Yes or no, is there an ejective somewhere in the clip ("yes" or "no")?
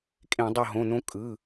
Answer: yes